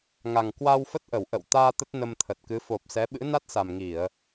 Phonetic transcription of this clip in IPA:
ŋ a˨˩ ŋ k w a˧ w f ə˦˥ t̚ ʔ ə˧˩ w ʔ ə̰˧˨ w t̪ aː˧ t̪ ə˦˥ t̚ n ə˧ m t̪ʰ ə˨˩ t̚ k ɨ˨˦ f o˨˩ p̚ s ɛ˨˦ ɓ ɨ̰˧˥ n a˦˥ t̚ s a˨˩ m ŋ i˧˩˨ ə̯

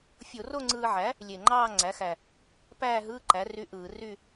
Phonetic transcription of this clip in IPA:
fʲ o˧˩˧ r o˥˧ ŋ͡ǀ ɯː˧ ʕ æ˩˥ | lʲ e˨˩ ŋ͡ǃ ɑː˥˧ ŋ͡ǀ æ˩˥ x æ˨˩ | p æː˥˧ ɦ ɯː˧˥˧ ǃ æ˩˥ r y˧˥˧ ʔ ɯː˧˩˧ r y˥˧

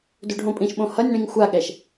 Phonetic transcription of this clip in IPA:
d u ɖʱ õ pʼ ĩ ʃ ɓ õ h ʌ nʲ ɳ ĩ ŋ xʷ a ɠ ɛ ʃ

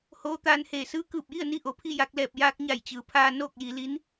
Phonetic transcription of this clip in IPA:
h oː˧˥ t̪ aː˧ n h eː˧˩ s ɯː˧˥ k ɯː˧˩ p̚ j i˥˨ ə̯ n i˧ ʔ o˩ pʰ i˥˨ j a˧ k̚ l ɛː˧˩ p̚ j aː˧ k̚ ɲ a˧˩ j t͡ɕ ɯː˩˧ pʰ aː˧ n oː˥˨ k̚ j i˩˧ l i˧˥ n

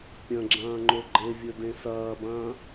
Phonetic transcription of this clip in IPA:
pʲ ɐ̃ ɡ͡ǁ ɐ̃ː ŋ͡ǃ o ɡ͡ǃ e vʲ ɵ d ẽ s ɐː b ɐ̃ː

